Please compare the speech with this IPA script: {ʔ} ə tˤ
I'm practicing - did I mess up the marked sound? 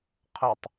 yes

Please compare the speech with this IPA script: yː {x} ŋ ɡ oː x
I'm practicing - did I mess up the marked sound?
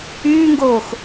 yes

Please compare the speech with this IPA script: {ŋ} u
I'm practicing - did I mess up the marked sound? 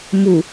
yes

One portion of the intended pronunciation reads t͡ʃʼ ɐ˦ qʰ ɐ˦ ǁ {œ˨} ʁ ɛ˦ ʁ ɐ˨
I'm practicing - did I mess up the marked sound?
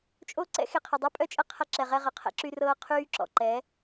yes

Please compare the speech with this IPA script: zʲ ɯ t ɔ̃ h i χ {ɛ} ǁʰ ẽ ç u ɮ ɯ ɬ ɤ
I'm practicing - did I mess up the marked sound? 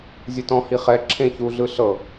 no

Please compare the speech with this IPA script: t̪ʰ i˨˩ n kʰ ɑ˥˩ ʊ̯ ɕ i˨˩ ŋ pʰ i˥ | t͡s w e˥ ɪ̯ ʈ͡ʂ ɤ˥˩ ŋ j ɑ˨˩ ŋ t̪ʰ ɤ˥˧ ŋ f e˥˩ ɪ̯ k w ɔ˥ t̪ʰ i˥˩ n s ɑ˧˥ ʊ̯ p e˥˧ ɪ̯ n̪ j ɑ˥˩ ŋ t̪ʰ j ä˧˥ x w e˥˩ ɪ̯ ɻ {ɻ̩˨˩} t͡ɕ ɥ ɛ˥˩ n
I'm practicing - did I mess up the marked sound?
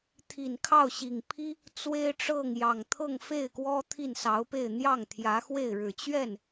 no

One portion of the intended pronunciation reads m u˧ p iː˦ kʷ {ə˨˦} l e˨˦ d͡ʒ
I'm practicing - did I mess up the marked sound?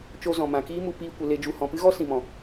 no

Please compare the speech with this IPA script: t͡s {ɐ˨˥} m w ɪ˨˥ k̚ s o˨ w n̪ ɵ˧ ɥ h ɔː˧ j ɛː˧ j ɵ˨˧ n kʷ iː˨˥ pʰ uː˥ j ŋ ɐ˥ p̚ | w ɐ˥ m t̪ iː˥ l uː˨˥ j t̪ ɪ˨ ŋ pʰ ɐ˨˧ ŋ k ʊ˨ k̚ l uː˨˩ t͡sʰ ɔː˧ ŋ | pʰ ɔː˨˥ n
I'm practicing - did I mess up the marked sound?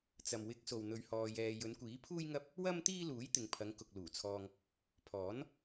yes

